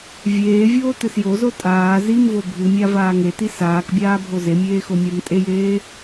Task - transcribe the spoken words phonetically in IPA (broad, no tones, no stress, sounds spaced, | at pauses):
vʲ eː vʲ oː t ɨ s j o z o tʼ aː z i m v o bʱ ɨ mʲ a v aː ŋ e t i s aː k bʲ aː bʱ o z e mʲ eː x o mʲ a m tʼ e j eː